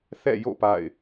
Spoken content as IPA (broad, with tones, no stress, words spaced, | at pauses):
θɛ̰˦˨jo̰˦˨ pa̰˦˨ɪ̯